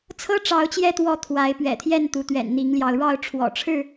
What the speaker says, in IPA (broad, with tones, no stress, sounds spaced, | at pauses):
t͡sʰ ɤ˦ ʈ͡ʂ ɑ˨˦ ʊ̯ t͡ɕ j ɛ˧ t̪ w ɔ˨˦ t̪ʰ w a˨˦ ɪ̯ p ɥ ɛ̰˨˩ t̪ʰ j ɛ˥˨ n t̪ u˨˦ t̪ ɥ ɛ̰˨˩ n n̪ i˨˦ ŋ l j ɑ˧ ʊ̯ ɻ ɑ˥˨ ʊ̯ ʈ͡ʂʰ w ɔ̰˨˩ ʈ͡ʂʰ ɻ̩˥˨